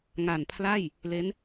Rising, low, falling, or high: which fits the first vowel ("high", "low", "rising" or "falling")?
low